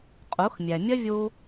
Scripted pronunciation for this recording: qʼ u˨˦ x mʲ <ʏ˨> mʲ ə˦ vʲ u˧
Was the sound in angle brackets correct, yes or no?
no